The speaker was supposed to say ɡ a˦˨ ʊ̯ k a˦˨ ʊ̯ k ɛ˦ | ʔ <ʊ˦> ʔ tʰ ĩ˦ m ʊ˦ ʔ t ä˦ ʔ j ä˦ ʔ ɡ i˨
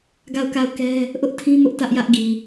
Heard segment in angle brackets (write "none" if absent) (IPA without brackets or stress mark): ʊ˦